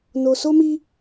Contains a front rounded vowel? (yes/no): no